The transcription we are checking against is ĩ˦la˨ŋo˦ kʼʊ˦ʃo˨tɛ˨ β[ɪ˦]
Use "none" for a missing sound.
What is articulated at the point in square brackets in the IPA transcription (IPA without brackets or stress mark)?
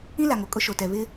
ɪ˦